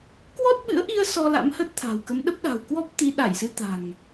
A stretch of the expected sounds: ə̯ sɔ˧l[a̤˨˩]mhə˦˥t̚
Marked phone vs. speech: incorrect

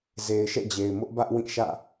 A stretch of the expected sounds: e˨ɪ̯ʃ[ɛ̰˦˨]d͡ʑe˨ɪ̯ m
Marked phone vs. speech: correct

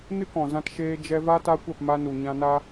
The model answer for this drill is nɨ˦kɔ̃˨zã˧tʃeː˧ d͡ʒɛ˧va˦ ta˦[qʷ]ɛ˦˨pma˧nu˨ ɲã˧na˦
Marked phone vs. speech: incorrect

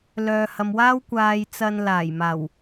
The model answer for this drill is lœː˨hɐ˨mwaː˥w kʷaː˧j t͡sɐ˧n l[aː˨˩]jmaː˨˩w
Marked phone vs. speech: correct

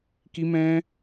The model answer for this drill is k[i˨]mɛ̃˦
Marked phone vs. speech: incorrect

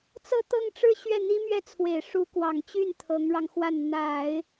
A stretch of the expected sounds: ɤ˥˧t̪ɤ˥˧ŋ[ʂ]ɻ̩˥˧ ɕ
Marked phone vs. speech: incorrect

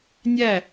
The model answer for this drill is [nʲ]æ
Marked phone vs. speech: correct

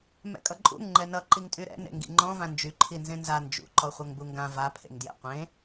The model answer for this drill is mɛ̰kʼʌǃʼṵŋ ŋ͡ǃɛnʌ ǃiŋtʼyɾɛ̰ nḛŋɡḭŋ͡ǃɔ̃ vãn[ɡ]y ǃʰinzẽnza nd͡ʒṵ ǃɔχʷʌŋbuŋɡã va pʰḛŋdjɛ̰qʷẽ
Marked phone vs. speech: incorrect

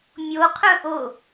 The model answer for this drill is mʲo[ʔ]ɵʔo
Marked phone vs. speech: incorrect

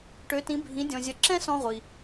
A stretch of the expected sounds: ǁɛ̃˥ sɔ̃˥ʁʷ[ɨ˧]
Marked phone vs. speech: incorrect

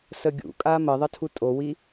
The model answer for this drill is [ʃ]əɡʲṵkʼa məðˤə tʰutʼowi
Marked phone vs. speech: incorrect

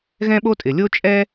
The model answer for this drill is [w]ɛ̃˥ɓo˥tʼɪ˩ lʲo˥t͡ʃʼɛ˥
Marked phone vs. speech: incorrect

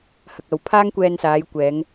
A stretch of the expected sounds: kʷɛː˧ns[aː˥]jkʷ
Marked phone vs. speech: incorrect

